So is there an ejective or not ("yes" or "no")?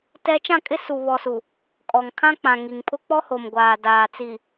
yes